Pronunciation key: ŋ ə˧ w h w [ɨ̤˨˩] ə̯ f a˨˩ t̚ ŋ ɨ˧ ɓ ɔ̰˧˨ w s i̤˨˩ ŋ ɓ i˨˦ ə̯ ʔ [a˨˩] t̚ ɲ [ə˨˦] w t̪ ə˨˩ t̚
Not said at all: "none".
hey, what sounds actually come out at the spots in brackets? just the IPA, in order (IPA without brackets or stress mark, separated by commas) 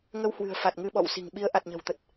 ɨ̤˨˩, a˨˩, ə̤˨˩